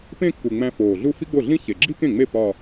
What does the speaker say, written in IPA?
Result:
p ẽ˥˧ kː u˨˩ ŋ͡m æ̃˧ f oː˨˩ ɮ u˥˧ f i˥ ɡ͡b o˥˩ ɮ ĩ˥ ç e˨˩ ɡ͡ǁ i˥ k ẽ˥˩ ŋ͡m e˥˩ p ɒ˥˧

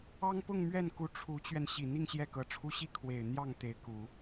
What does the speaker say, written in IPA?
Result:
ɑ˥ ŋ p ʊ˥˧ ŋ m ɥ ɛ˥˩ n k u˧˥ ʈ͡ʂʰ u˧˥ t͡ɕ ɥ ɛ˧ n ɕ i˨˩ n̪ i˥˧ ŋ ɕ j ɛ˥˩ k ɤ˧˥ ʈ͡ʂʰ u˥˧ ɕ i˥˩ kʰ w e˨˩ ɪ̯ n̪ j ɑ˥˩ ŋ t̪ e˧˥ ɪ̯ k u˨˩˦

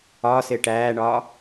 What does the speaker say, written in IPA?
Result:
ɒː s ɪː ʈ æː ɳ ɒː

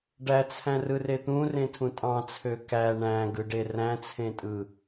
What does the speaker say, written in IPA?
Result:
ɖ æ t͡sʰ æ̃ r ɯ r e t̪ ũ r ẽ tʰ ũ tʼ ɑ̃ t͡sʰ ø k æ ɳ æ̃ ɡ ɯ ɖ e r æ̃ t͡sʰ ẽ tʼ ɯ

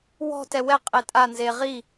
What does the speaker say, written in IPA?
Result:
w ɔ̤ t ɛ w ɛ qʼ e tʼ a n z e ʁ i

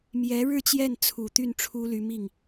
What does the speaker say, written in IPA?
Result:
m j ɛ˧˥ ɻ ɻ̩˥˧ t͡ɕ j ɛ˥˩ n t͡sʰ u˨˩ t̪ y˥˩ n ʈ͡ʂʰ u˥ l y˧˥ m i˥˩ ŋ

